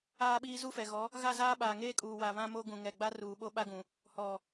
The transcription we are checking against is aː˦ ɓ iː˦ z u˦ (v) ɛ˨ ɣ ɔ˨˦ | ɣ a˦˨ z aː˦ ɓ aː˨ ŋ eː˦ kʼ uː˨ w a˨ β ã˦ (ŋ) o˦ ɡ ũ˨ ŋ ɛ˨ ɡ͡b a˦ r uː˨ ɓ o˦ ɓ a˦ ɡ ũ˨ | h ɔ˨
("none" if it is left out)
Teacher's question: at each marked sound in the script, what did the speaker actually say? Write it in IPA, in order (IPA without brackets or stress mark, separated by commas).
f, m